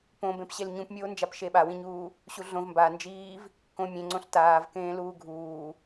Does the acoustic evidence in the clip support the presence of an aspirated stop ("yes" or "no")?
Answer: no